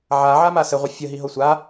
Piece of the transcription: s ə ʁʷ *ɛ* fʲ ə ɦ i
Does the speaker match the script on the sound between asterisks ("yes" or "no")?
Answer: no